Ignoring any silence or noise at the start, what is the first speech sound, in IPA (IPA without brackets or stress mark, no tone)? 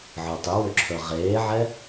ʕ